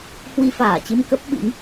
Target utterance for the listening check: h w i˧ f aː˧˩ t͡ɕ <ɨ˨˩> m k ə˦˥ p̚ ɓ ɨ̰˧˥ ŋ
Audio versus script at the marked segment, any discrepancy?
yes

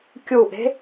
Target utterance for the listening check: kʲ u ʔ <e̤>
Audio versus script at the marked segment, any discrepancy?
no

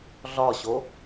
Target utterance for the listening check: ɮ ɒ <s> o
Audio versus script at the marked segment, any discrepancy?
yes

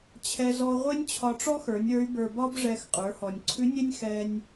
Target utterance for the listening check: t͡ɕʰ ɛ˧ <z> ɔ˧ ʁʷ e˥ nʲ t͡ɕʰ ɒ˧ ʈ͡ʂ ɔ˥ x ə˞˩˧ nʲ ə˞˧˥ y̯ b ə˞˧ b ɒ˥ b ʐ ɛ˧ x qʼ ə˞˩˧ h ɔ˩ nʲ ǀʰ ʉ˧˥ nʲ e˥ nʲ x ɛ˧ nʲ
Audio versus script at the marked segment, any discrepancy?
no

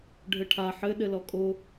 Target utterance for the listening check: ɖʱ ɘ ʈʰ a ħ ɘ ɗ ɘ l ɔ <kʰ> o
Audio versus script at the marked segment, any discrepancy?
yes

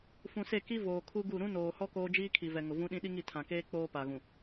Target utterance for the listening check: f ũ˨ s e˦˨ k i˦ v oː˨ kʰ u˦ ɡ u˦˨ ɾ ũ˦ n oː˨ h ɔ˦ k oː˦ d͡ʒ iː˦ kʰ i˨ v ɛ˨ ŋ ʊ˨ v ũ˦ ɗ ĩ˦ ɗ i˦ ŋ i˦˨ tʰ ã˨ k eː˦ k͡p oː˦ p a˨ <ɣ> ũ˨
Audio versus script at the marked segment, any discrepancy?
no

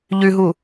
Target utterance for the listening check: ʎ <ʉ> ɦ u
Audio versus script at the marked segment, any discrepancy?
no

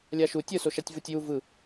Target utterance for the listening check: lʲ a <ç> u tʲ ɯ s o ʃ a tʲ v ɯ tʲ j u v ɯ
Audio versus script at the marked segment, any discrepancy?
yes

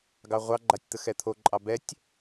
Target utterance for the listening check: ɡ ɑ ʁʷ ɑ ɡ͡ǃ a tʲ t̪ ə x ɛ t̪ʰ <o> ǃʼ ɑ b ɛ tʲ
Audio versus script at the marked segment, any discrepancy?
no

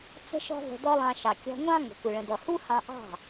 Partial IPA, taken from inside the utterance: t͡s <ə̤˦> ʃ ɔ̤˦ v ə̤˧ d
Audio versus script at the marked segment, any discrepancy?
no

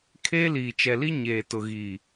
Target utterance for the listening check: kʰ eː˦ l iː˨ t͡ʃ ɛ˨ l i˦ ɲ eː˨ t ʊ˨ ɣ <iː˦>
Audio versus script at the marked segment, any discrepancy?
yes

